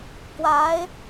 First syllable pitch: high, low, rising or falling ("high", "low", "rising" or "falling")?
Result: rising